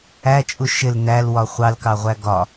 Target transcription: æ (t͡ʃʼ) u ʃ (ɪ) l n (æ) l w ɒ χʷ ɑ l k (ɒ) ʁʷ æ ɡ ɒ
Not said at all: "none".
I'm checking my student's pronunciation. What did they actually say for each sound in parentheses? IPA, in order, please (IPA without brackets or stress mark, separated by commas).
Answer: t͡ʃʼ, ɪ, æ, ɑ